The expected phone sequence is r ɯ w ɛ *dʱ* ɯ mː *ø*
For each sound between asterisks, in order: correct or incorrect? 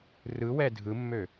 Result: correct, correct

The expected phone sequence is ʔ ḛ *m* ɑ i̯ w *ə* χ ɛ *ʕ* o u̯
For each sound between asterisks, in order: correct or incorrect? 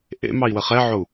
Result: correct, correct, correct

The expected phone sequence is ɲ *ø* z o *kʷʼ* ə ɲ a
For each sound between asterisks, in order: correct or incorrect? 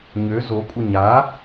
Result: correct, correct

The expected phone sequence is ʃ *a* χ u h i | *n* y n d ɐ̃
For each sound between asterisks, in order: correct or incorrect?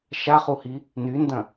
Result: correct, correct

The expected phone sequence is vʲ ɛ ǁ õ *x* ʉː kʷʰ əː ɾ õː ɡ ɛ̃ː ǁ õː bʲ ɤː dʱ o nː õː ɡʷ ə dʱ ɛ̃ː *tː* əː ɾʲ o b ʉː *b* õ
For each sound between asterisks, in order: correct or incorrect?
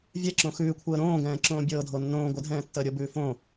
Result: correct, correct, incorrect

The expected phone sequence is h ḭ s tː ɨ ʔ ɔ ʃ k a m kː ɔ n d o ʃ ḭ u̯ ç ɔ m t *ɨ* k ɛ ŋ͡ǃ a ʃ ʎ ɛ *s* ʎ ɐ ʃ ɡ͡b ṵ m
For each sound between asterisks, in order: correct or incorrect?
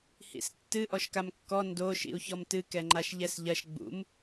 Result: correct, correct

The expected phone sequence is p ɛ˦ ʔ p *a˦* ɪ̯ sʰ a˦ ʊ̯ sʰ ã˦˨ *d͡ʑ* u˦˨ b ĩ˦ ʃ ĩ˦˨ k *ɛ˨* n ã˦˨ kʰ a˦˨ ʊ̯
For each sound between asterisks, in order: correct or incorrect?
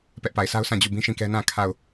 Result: incorrect, correct, incorrect

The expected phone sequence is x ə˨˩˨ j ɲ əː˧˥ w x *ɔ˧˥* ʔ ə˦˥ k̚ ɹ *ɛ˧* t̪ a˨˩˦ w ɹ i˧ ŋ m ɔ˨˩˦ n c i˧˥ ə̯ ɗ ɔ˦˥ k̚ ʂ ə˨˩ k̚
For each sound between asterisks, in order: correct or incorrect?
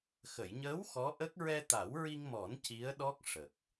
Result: correct, correct

